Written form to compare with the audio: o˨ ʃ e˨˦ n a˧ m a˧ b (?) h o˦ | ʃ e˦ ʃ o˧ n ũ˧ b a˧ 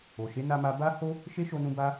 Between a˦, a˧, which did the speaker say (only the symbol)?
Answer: a˦